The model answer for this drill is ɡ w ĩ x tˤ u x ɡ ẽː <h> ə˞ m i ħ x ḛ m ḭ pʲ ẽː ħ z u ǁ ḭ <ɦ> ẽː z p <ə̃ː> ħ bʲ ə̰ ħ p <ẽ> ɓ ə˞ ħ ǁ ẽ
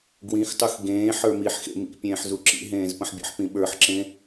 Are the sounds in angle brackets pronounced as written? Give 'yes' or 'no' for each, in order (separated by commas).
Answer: no, yes, no, no